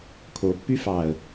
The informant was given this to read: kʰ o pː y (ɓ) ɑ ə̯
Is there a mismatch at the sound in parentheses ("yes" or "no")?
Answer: yes